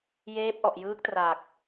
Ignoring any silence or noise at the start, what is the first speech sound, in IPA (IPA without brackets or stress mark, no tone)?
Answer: j